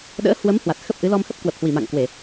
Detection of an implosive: present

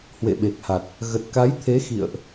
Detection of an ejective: absent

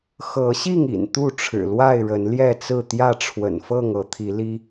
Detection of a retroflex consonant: present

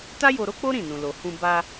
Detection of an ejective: absent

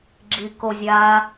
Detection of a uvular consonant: absent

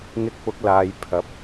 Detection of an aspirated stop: present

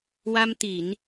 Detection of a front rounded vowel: absent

